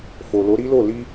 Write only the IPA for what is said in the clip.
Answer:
f o˨ l o˨˦ ɾ i˦ l o˦˨ l i˧

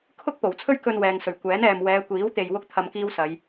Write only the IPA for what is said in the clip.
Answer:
kʰ ʊ˥ k̚ p o˨˩ w t͡sʰ ɵ˥ ɥ k ɵ˧ n w ɛː˨ ŋ s ɵ˨˩ ɥ kʷ ɛː˨˥ n ɛː˨ m w ɛː˨˧ kʷ iː˨˥ w t̪ e˧ j w ʊ˥ k̚ t̪ʰ ɐ˧ m k iː˥ w s ɐ˨˧ j

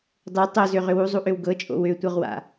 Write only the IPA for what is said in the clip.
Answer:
dˤ o tˤ o z ø ʁ ʏ w u zˤ u ʔ ø w ɡ ɤ t͡ʃʼ o̰ w ø tʷ ɤ ʁ w a̰

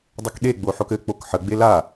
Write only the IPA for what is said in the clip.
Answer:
dˤ ɘ k ɗ e ɡ͡b o ħ o k ɘ k͡p o k ħ ə ɡ͡b e l a

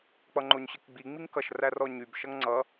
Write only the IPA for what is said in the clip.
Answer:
k͡p ʌ ŋ͡ǃ o ɲ ɕ ə k ɡ͡b i ŋ͡m i ŋ k ʌ ʃ r æ r ɔ ɲ y b ʃ ʌ ŋ ŋ͡ǀ ʌ

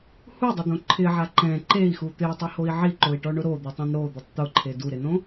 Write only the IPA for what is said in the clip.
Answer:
h u dˤ ʊ d̪ õ ǃʰ ɪ ʕ a ǃ ɛ̃ ǃ e i̯ x u t̪ ɪ u̯ tˤ i h o i̯ ʕ i ǃ o i̯ ʈ ɔ ɳ ʊ ɾ o d̪ u tˤ ɛ̃ n ɾ o d̪ ɪ tˤ t̪ ʊ ǃʰ e d u ɾ ɪ n õ

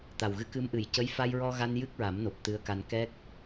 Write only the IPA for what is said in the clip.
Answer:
t̪ a˨˩ w ɣ ɨ˧˥ k ɨ˧˥ m ʔ ɨ˨˩˨ j c ə˧˥ j f a˧ j ɹ ɔ˧ ɣ a˧ n j ɨ˦˥ k̚ ɹ a˨˩˦ m n o˨˩ p̚ t̪ ɨ˧˥ ə̯ k a˧ n k ɛ˦˥ k̚

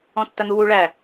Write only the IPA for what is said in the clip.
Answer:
ɔ̃ tː ɐ n̪ u w u ɭ æ

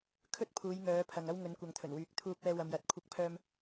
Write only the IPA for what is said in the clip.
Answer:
kʰ ɵ˥ t̚ pʰ uː˨˧ j ŋ œː˨˧ pʰ ɐ˨ ŋ ɐ˥ w ŋ ɵ˨˧ n kʷ ɐ˨ ŋ t̪ʰ ɵ˨˩ n w yː˨˥ k̚ t̪ʰ uː˧ p̚ ɛː˧ w ɐ˨ m j ɐ˨˥ t̚ kʷʰ ɐ˧ k̚ pʰ œː˧ m

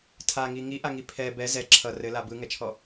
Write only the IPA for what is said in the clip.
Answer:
tʰ a ŋ i ŋ i ʔ a ŋ i pʰ ɛ b ɛ z ɛ ǁʰ ʌ r ɘ l a b ɯ ŋ ɛ t͡ʃʰ ɔ

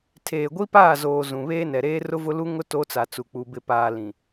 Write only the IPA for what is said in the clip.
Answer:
tʰ eː˨ ɡʷ i˦ p aː˦˨ z oː˨ z ũ˨ β eː˦ n ɛ˨ ɾ eː˦ r ʊ˦ v ʊ˦ l u˦ ŋ ʊ˦ t o˦ t͡s a˨ t͡s u˨ k͡p u˨ b ɪ˨ p aː˨ l ĩ˨

